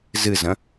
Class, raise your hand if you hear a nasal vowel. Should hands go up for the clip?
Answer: yes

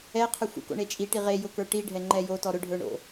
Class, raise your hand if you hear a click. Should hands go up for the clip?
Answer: yes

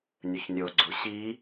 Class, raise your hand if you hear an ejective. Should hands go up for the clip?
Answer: no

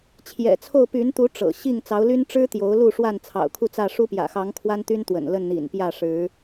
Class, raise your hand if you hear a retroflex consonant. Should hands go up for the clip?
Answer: yes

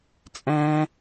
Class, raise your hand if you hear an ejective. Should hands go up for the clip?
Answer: yes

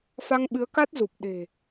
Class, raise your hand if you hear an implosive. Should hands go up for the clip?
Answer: yes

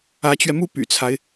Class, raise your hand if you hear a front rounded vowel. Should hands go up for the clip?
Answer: yes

